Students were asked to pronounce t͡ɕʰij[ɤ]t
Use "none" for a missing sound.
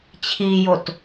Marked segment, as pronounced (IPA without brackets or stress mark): o